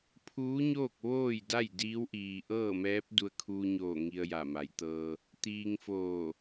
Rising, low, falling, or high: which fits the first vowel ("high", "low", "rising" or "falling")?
rising